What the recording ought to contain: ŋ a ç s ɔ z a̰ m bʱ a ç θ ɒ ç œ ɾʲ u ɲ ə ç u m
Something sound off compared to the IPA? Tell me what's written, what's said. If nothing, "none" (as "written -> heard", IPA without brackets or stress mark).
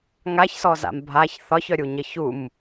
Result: none